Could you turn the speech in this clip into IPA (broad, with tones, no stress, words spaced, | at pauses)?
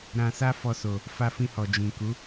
ɾã˧sa˦ fɔ˧so˨ | fa˧fĩ˧hɔ˨ d͡ʒĩ˨ku˨˦